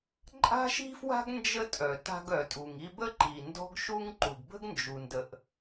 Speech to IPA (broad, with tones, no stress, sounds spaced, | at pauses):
ǃʼ a̤˥ ʃ i̤˥ f w a̤˥ ɡ n d͡ʒ ə˥ tʼ œ˩ t a̤˧ ɡ œ˩ tʼ u˩ ŋ i˧ b ə˥ ǃ i˩ n d ɔ̤˥ ɡ ʃ u˥ ŋ ǃ u˩ ɡ b ə̤˥ ɡ n d͡ʒ u˩ n d ə˩ ʔ